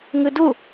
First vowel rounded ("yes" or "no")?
no